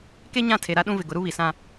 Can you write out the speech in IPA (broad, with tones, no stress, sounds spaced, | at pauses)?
k e˦ ɲ ã˦˨ tʰ e˨ ɾ a˦ ɗ ũ˦ v ɪ˨ ɡ ʊ˨˦ ɾ u˦ β i˨ s ã˦